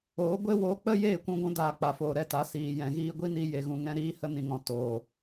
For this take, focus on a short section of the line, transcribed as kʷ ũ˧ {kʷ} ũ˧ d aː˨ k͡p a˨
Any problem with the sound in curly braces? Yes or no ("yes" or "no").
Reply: yes